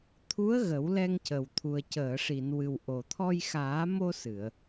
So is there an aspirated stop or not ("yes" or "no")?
yes